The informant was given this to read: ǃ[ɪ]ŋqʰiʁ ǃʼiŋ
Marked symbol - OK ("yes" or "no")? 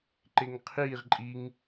yes